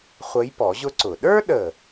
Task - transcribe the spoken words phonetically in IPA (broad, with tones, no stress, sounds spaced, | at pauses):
χʷ ə˧˥ j p ɔ˨˩˦ ʑ ʊ˥ ǀ ʊ˨˩ ɗ ə˞˥ ɗ ə˨˩